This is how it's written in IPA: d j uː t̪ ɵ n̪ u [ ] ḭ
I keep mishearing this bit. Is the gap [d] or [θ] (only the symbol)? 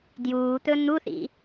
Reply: θ